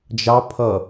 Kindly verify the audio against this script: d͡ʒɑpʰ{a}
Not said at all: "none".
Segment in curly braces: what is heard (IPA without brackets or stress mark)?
ʌ